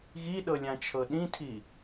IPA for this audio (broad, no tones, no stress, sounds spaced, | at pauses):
ɣ i ɗ ɤ lʲ ã t͡ʃʰ ɤ ɗ ĩ tʰ i